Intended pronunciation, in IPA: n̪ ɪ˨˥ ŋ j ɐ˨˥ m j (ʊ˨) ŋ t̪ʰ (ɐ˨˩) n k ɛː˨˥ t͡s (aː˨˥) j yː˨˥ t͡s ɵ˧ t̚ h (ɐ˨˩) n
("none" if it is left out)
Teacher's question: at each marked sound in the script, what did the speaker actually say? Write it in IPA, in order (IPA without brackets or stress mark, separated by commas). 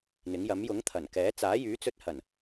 ʊ˨˥, ɐ˨˩, aː˨˥, ɐ˨˩